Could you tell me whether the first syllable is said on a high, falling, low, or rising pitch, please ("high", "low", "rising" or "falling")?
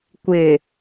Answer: low